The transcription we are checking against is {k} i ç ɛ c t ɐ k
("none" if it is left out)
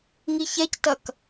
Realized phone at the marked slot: ŋ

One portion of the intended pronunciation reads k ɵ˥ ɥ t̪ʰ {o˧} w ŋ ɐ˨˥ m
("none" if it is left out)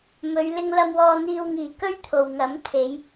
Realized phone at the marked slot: o˨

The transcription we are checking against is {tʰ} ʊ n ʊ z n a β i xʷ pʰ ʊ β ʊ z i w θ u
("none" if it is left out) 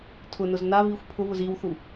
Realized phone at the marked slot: tʰ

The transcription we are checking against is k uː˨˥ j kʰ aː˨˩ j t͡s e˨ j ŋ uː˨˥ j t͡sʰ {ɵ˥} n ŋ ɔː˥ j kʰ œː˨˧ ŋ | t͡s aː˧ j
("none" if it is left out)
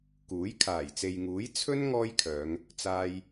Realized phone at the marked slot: ɵ˥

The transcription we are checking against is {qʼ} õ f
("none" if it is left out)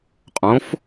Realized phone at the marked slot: qʼ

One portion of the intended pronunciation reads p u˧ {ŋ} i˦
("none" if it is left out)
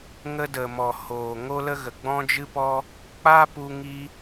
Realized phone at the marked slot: ŋ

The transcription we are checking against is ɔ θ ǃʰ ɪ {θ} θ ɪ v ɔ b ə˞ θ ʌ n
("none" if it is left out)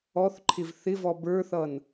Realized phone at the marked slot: v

